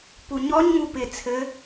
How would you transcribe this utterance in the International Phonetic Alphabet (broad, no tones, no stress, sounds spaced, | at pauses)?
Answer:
p u ɲ ɔ ɲ ŋ u p ɪ t͡sʰ ɘ